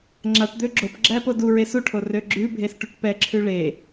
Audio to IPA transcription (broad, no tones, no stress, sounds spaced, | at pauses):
ŋ͡ǁ a ʈ d̪ ø ɡ͡ǁ o p ɡ͡ǁ æ p o d u ɹ e s u ʈʰ o r ø ɡ͡ǁ ʉ bʱ e s ʈ u ʈ p ɛ ǁʰ ʉ ɭ e